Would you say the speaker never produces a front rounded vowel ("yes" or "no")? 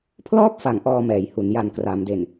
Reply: yes